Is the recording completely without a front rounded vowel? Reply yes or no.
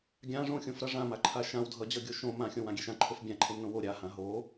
yes